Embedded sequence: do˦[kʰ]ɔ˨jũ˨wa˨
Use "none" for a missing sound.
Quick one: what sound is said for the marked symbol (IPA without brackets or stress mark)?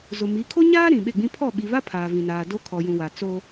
kʰ